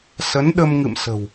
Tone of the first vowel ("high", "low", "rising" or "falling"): rising